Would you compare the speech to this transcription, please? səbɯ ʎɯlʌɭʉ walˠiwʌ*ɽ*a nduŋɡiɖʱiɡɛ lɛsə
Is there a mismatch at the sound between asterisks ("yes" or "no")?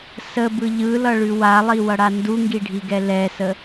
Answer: no